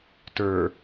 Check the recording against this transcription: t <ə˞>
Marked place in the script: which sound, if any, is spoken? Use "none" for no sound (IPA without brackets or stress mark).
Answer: ə˞